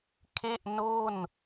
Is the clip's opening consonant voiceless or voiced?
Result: voiceless